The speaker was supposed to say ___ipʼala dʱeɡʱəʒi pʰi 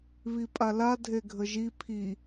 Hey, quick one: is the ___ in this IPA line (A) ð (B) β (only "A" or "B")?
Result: B